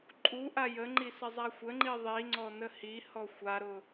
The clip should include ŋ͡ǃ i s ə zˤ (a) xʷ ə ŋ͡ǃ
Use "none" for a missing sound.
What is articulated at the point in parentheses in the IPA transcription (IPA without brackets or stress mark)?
a